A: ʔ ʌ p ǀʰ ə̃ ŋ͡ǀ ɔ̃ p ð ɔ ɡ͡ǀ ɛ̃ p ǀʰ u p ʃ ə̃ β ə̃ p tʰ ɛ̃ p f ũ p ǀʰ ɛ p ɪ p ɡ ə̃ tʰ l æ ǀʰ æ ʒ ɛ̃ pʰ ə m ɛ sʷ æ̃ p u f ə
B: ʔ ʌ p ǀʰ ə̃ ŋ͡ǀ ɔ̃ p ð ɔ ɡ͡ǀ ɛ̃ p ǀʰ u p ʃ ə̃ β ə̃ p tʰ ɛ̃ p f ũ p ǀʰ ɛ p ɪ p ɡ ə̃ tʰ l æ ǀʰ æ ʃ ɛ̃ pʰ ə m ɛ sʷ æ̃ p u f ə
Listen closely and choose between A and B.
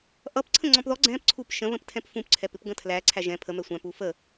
A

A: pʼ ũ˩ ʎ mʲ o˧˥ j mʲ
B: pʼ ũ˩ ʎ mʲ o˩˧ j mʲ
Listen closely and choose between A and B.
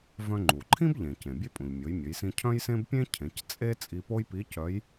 B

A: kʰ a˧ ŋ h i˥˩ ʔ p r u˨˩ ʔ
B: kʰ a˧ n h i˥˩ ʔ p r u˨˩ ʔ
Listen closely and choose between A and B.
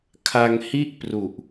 A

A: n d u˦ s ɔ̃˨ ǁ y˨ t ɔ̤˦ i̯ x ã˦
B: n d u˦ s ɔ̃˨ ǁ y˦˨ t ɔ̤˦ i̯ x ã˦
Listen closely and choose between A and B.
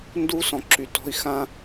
A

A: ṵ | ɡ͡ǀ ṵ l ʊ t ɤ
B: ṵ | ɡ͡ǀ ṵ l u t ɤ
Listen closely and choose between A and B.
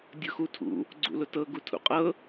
A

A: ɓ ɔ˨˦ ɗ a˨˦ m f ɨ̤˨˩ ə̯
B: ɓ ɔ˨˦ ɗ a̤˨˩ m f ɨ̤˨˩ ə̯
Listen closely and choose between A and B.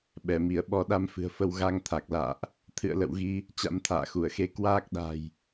A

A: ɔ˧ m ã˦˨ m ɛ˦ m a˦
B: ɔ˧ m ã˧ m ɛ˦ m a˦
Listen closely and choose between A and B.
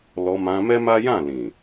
B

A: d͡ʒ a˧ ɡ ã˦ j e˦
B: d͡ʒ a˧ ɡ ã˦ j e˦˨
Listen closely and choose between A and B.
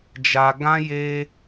A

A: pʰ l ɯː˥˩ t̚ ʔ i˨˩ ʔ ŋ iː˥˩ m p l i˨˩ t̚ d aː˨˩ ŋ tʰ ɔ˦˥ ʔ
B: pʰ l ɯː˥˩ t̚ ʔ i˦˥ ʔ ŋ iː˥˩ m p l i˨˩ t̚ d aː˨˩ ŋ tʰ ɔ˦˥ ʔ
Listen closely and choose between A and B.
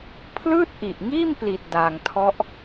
A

